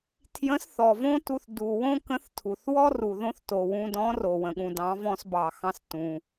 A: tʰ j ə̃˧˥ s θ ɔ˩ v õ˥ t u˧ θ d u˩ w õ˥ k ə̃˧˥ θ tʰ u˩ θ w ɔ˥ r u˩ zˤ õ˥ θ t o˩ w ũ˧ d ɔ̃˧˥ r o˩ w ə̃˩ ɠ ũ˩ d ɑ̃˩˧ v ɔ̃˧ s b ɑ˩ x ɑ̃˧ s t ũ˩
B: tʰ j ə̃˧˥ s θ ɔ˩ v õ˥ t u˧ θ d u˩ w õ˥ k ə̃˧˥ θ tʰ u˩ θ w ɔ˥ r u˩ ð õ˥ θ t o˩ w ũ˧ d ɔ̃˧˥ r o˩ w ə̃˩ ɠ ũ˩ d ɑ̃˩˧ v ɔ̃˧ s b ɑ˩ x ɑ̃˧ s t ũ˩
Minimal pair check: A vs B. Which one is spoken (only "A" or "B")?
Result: B